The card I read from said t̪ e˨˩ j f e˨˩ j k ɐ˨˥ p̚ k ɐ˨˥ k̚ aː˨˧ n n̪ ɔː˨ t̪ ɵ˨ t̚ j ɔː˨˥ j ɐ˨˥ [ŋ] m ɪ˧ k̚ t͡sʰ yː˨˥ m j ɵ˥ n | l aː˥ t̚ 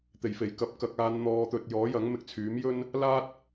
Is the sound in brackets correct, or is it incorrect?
correct